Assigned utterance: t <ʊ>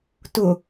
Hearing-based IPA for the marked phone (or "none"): ʊ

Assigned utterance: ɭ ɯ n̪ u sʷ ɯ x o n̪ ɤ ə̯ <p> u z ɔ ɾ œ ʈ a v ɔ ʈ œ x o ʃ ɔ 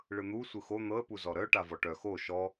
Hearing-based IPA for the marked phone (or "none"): p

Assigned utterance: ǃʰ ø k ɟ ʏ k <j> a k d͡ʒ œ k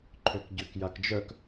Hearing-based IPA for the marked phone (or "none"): j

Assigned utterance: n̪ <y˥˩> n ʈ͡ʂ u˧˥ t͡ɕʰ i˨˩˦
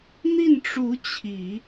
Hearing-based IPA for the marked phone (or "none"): i˥˩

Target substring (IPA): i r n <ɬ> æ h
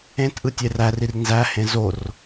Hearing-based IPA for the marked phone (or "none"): z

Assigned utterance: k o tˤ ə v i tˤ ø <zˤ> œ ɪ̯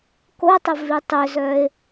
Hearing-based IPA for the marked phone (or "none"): z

